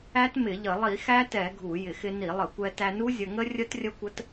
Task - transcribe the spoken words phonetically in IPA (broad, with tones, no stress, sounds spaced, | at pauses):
æ˦˥ t m ɪ˧˩˧ ʎ ə˧˩˧ lˠ i˧˩˧ x æ˦˥ t ɛ˧˩˧ ɡʱ u˧˩˧ j ɪ˧˩˧ x ɪ˧ n i˧˩˧ lˠ ə˧˩˧ kʷ ɛ˧ t æ˧ n u˦˥ zʲ ə˧ ŋ ə˦˥ rʲ ə˦˥ t rʲ ə˦˥ kʷ ə˦˥ t